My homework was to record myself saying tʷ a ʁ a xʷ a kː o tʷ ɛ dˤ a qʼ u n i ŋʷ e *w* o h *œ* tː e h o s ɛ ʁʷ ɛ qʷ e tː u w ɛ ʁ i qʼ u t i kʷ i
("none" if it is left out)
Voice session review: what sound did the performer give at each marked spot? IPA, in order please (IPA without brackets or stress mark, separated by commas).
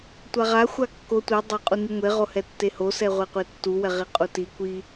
ʁ, ɛ